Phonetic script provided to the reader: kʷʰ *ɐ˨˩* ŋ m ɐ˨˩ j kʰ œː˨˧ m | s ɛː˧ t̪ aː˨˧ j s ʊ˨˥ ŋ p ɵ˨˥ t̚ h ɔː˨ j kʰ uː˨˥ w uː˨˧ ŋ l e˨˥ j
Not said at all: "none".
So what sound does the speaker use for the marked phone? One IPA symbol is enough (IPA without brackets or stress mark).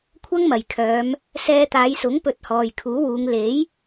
ɐ˥